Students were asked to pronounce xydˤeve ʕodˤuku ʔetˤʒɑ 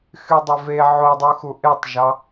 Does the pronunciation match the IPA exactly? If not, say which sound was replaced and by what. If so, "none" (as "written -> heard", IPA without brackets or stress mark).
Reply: k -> x